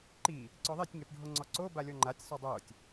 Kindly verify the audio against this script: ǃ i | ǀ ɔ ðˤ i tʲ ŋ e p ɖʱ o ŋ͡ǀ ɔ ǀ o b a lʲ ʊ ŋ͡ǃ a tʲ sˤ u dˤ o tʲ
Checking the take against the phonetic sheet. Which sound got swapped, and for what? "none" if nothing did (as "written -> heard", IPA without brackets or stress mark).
ʊ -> ɔ